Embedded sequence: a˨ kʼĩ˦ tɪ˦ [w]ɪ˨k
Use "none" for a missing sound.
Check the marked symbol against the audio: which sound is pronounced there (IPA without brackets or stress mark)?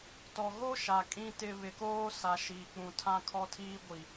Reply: β